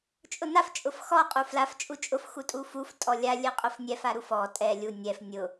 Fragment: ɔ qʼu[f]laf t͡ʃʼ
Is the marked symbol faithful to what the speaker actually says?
yes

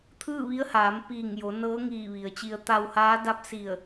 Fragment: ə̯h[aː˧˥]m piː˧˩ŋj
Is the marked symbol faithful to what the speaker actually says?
no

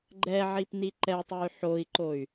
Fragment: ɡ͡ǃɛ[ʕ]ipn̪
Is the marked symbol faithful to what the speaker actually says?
yes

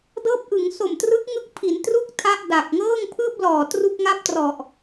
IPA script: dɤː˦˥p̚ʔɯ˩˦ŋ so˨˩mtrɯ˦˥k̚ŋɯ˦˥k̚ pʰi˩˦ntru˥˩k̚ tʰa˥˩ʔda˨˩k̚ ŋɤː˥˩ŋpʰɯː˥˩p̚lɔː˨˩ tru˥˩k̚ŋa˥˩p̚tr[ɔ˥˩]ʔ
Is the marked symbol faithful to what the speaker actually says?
no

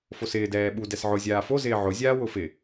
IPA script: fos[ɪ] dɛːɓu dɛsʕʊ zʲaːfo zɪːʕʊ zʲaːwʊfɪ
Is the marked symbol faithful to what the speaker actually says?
no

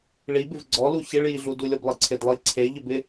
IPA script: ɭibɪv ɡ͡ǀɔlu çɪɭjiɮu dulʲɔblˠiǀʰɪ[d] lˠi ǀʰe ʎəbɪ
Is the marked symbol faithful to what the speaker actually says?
yes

